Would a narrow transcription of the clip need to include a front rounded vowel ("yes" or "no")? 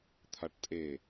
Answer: no